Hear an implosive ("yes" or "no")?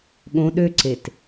yes